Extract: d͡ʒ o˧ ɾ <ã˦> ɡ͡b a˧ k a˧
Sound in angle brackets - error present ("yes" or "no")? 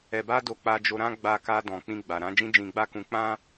no